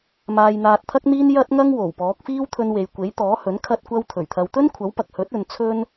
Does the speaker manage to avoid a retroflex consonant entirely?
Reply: yes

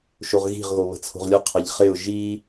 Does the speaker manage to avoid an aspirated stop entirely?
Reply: no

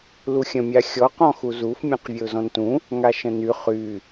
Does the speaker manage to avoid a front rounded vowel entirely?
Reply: no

